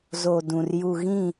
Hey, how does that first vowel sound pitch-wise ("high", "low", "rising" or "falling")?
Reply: low